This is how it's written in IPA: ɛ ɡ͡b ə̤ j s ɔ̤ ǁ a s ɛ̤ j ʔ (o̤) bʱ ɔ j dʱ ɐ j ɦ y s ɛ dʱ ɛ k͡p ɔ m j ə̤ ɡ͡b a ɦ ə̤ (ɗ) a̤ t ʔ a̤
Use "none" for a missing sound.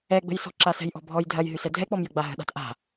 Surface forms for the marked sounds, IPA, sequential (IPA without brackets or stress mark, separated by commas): ɔ̤, ɗ